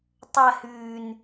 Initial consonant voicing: voiceless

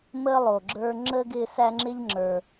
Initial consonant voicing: voiced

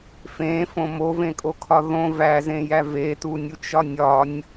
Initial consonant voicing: voiceless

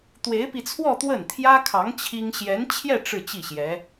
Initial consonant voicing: voiceless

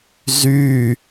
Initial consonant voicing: voiced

